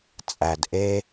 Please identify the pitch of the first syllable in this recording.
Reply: low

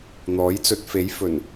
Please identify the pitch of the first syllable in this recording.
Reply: rising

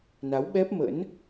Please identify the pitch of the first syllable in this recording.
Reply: rising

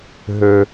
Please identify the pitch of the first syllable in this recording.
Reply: high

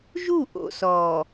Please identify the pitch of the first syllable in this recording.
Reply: falling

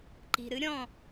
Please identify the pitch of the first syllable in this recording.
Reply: low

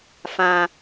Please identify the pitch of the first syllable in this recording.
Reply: high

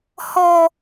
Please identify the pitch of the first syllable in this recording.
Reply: high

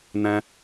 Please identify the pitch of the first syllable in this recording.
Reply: high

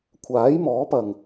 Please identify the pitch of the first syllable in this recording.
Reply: rising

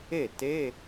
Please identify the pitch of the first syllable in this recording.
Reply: falling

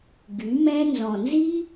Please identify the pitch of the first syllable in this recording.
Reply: rising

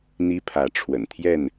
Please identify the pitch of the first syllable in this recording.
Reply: high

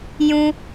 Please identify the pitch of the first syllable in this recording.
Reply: high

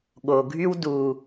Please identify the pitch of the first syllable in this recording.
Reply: low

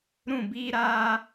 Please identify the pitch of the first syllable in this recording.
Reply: falling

